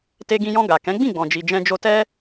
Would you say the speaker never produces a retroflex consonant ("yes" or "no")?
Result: yes